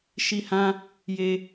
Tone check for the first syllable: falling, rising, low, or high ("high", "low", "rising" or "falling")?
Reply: high